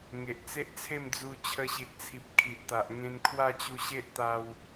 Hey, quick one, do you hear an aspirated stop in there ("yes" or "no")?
yes